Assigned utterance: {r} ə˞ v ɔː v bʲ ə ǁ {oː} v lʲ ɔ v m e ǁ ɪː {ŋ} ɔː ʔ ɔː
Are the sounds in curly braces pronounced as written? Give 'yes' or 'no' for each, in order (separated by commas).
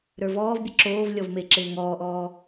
no, yes, yes